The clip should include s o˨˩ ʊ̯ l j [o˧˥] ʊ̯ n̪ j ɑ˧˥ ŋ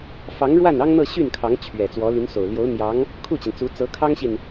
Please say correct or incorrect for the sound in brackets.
correct